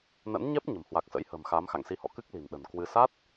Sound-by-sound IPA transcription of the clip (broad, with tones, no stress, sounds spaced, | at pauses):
n ə̰˧˥ n ɲ ɛ˦˥ p̚ ɲ ə̤˨˩ m h w a˨˩ k̚ s ə̰˧˥ j h ə̤ː˨˩ m x aː˨˦ m x a̰˧˨ ŋ s i˧ h ɔ̰˧˨ k ɨ˦˥ k̚ l i̤˨˩ n ɗ ə̤˨˩ n k w ɨ˧ s a˦˥ t̚